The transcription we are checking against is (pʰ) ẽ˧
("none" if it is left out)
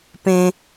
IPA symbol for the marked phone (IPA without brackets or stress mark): p